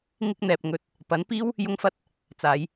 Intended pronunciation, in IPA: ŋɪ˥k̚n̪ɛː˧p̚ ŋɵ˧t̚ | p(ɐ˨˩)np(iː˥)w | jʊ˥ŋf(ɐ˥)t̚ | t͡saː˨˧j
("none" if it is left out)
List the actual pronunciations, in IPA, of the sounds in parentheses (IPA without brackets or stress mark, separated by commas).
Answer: ɐ˨˥, iː˥, ɐ˥